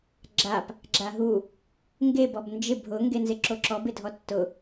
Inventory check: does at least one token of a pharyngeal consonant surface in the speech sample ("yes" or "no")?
no